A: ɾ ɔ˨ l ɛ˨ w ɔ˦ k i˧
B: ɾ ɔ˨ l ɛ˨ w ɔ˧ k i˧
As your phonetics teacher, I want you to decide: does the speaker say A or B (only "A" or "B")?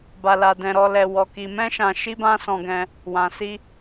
B